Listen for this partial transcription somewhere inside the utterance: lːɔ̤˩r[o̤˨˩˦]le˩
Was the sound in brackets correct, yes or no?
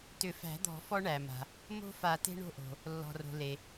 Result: no